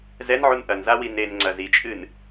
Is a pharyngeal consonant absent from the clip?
no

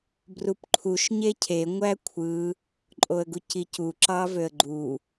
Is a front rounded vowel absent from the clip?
no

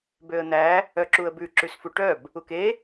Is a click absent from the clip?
no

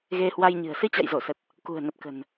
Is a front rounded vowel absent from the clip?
yes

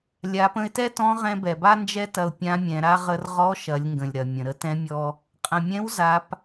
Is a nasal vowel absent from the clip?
no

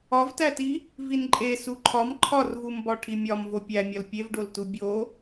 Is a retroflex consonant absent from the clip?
no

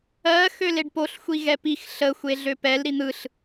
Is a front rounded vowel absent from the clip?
no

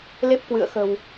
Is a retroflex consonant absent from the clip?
yes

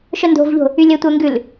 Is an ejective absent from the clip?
yes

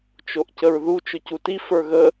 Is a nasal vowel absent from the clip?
yes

